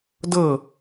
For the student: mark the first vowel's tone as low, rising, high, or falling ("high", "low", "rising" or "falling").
falling